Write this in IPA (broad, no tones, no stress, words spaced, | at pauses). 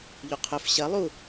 ʎuqʰɵf ɕɐ lˠu